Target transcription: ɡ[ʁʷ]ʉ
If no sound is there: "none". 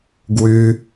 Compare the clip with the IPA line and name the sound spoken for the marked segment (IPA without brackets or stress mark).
w